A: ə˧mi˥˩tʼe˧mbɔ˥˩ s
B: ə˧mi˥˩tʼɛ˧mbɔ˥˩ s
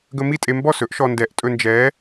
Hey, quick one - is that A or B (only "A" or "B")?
A